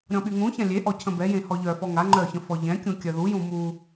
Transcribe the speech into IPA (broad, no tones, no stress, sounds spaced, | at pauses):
ɾʲ ɔ̃ ɓ y ŋ ũ ç ã lʲ e ʔ ɔ cʰ ə̃ b ɛ j ẽ h ɔ ʎ œ f ɔ ŋ a ŋ͡ǃ œ ç ə̃ f ɔ ʎ ɛ̃ kʲ ũ kʲ œ ð u j ũ m u